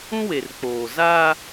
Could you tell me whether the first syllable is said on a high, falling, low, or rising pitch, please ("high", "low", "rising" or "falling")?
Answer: high